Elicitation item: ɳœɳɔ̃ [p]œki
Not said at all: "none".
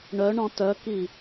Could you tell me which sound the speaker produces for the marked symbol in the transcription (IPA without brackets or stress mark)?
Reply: t